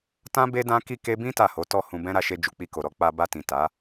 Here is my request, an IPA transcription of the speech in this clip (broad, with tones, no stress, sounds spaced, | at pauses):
t ã˦ b e˦ d ã˦ k i˦˨ k e˧ b ĩ˦ t a˦˨ h o˨˦ t ɔ˦˨ h ũ˧ b ɛ̃˦ ɾ a˧ ʃ e˧ d͡ʒ u˨ k͡p i˧ k o˨ ɾ ɔ˧ k͡p a˧ b a˧ t ĩ˨ t a˨˦